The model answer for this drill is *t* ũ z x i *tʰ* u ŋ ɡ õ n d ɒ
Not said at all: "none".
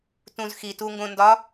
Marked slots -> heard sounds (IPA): t, t

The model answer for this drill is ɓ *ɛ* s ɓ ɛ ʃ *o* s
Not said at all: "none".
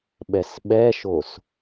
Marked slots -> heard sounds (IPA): ɛ, o

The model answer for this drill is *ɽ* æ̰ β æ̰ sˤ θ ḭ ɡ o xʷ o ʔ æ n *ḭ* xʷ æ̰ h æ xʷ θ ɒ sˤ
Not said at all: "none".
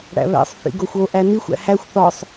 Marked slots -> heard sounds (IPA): ɽ, i

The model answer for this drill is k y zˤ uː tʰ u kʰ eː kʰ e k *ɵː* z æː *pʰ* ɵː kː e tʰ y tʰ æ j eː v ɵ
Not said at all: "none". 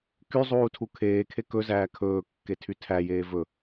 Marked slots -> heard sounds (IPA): ɵ, kʰ

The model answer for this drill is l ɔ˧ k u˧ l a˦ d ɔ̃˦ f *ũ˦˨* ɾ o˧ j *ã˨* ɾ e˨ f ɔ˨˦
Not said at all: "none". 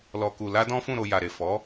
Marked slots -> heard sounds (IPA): ũ˦˨, a˨

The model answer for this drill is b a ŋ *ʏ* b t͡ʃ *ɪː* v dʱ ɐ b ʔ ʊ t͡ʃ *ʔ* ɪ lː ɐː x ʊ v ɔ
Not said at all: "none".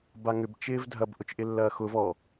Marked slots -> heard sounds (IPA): ʏ, ɪː, ʔ

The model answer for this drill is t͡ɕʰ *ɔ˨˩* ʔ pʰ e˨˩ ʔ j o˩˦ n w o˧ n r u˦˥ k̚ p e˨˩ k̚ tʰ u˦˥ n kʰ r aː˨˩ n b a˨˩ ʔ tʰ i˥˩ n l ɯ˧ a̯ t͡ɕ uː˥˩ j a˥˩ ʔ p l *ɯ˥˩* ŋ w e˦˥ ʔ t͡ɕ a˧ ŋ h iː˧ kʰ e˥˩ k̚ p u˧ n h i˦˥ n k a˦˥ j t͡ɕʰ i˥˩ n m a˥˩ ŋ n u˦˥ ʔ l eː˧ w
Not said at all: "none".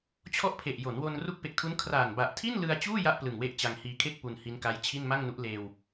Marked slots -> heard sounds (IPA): ɔ˥˩, ɯ˨˩

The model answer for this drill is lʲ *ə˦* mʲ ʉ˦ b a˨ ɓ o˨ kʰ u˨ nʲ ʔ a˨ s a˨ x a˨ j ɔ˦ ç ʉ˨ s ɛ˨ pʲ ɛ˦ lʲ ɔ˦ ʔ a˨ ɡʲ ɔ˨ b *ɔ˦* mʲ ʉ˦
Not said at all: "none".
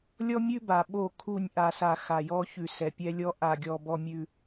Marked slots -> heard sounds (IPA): ɔ˦, ɔ˦

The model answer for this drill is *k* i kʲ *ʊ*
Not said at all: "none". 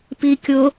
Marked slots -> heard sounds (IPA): p, ʊ

